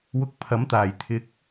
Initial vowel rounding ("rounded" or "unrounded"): rounded